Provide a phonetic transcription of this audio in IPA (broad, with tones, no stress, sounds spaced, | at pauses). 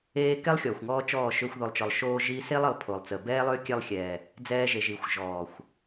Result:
eː˧ k ɛ˦ lˠ xʲ ɔː˨ xʷ ŋ ɔː˧ t͡ʃ ɔː˦˨ ʃ ʏː˧ xʷ ð o˨ lˠ t͡ʃ ɔ˨ lˠ ʃ oː˧ ʒ iː˧ s e˦ lˠ ə˨ lˠ pʰ o˨ lˠ t͡s ə˨ b ɛː˦ lˠ ʏː˦ kʲ ɛ˧ lˠ xʲ ɛː˨ | d͡z ɛː˧ ʒ e˨ ʒ i˨ xʷ ʒ ɔː˨ xʷ